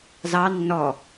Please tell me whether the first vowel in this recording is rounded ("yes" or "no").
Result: no